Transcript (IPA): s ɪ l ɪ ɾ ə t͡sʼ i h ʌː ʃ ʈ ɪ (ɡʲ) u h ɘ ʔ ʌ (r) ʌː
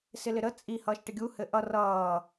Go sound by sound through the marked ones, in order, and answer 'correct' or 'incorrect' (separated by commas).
correct, correct